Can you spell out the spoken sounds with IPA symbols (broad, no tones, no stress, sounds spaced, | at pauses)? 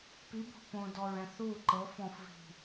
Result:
p i b o̤ p õ d ɔ ɹ ɛ̃ θ u ǃ ɤ f ɔ̃ f v i̤